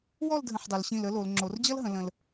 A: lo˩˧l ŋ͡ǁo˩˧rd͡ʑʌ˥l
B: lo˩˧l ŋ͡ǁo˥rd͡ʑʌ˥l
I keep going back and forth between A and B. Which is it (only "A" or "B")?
A